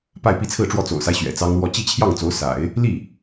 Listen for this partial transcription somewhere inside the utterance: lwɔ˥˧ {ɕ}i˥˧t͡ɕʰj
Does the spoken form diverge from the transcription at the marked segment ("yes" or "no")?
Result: yes